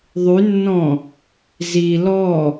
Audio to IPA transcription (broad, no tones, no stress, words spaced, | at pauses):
ðˤynːɔ̃ | zi lɔ